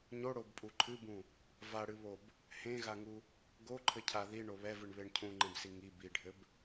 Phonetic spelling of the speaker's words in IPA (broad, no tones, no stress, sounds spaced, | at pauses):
ɲ o ɽ o b pʼ u ǃʰ ɨ b ũ | v a ɽ ɨ β o b | h ẽ ɣ a ŋ u | ɡ o ǃʰ ɘ cʰ a ð i ɳ o β ɛ v ɨ ɳ β e ɳ cʰ ũ ŋ͡ǃ ẽ b s i ŋ i b i ɖʱ ɘ b